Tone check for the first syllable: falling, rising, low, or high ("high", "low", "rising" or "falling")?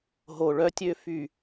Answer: low